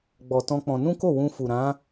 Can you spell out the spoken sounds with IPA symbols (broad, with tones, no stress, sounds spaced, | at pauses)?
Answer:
ɡ͡b ɔ˧ t ɔ̃˦ k͡p ɔ̃˧ n ũ˦ k o˦˨ w ũ˧ f u˨ ɾ ã˨˦